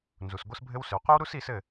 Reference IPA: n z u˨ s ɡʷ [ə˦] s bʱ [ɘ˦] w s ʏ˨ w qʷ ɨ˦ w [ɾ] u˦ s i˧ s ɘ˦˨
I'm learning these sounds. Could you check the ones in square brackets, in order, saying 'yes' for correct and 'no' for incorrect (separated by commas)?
yes, yes, yes